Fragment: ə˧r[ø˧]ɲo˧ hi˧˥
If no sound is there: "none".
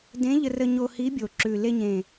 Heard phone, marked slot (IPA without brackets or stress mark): ə˧